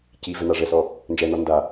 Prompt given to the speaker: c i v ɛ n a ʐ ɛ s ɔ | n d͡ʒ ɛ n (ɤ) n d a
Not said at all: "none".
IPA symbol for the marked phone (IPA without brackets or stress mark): ɔ